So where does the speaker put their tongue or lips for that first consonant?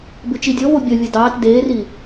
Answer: lips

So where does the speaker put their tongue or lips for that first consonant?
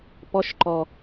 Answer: lips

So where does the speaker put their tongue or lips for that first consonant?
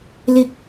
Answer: tongue tip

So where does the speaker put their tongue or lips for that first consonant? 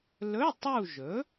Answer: tongue tip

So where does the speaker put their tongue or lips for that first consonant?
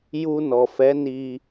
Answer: palate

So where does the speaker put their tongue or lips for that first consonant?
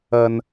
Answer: tongue tip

